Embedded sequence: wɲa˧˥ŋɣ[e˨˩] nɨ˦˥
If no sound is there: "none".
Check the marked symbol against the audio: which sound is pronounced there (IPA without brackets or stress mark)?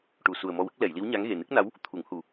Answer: e˨˩